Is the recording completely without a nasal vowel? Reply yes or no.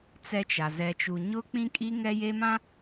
no